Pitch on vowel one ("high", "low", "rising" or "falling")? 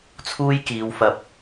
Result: high